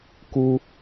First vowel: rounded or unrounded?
rounded